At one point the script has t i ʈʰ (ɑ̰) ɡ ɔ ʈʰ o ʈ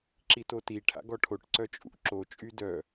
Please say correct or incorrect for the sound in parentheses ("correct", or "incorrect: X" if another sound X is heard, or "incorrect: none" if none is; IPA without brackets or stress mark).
incorrect: a̰